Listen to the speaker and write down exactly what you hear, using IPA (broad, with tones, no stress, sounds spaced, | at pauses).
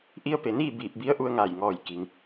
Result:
ʔ i˧ ə̯ p e˩ n iː˥˨ b iː˧˩ p̚ b i˧˥ ə̯ ʔ u˧ ə̯ ŋ aː˧˩ j ŋ ɔː˧˩ j k i˩ ŋ